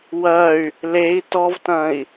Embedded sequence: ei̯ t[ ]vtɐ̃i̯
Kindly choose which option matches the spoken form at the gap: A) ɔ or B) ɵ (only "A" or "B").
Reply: A